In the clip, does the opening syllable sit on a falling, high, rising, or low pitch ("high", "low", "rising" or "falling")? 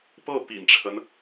falling